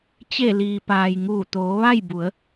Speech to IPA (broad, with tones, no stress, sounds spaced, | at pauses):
t͡ɕ e˧˩ l iː˩ p aː˩ j ŋ uː˧˩ t̪ oː˩˧ ʋ a˥˨ j b u˩˧ ə̯